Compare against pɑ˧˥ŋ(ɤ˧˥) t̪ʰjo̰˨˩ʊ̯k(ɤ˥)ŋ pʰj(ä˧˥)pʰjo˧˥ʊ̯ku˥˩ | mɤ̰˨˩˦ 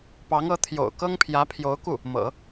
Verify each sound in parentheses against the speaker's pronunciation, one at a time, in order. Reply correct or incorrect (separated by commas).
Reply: correct, correct, correct